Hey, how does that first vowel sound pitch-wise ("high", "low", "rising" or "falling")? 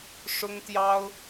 high